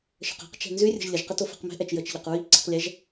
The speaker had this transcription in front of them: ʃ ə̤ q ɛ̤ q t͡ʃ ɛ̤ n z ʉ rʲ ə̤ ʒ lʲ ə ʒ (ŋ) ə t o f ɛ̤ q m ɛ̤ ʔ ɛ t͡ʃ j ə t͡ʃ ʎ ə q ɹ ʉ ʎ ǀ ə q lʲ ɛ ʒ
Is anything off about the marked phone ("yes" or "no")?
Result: yes